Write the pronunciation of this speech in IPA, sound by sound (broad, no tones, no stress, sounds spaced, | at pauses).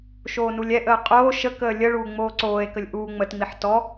ʃ oː n u lʲ ɛ ʔ əː qʼ oː ʃ ə k əː lʲ ə ɭ uː ŋ͡m oː ǀ oː e̯ k ə lʲ ʔ uː ŋ͡m ə t ŋ͡m i ħ t ɔ